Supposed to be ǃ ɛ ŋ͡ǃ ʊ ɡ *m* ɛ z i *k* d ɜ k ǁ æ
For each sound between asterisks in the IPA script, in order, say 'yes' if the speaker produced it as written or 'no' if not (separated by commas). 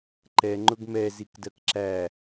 yes, yes